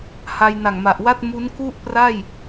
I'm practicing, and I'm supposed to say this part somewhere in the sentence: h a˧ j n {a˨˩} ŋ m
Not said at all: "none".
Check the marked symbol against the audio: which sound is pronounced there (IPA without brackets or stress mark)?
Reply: a˨˩